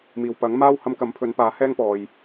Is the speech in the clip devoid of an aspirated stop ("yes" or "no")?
no